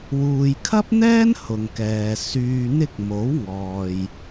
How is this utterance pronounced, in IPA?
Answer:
wuː˨jkʰɐ˥p̚n̪ɛː˥n hʊ˨ŋkɛː˨ syː˨n̪ɪ˧k̚ mo˨˥wŋɔː˨j

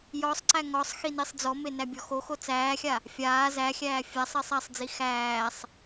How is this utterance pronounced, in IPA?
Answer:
jɔsˤǀæ ŋɔsˤ xinisˤd͡zɔme næbʲɔxoxo t͡sæːxʲa | fʲaː zæxʲæː fʲasˤ esˤæsˤd͡zi xæːsˤ

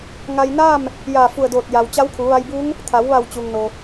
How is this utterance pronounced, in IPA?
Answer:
ŋa˧jnaː˥˨m | jaː˧˩fu˧˩ə̯doː˧˩t̚ ja˩w t͡ɕa˧˥wkʰu˩˧ʋa˧jbuː˧˥ŋ | t̪ʰa˩˧wʋa˧˩w t͡ɕuː˩ŋno˩

